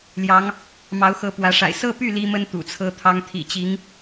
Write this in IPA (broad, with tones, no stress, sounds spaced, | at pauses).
l j ɑ˧˥ ŋ | m ɑ˧˥ ʊ̯ x ɤ˧˥ p w ä˧˥ ʂ a̰˨˩ ɪ̯ s ɤ˥˧ p y˥˩ l i˥ m ə˥ n t̪ ṵ˨˩ t͡sʰ ɤ˥ t̪ʰ ɑ˥ ŋ t̪ʰ ḭ˨˩ t͡ɕ i˧˥ ŋ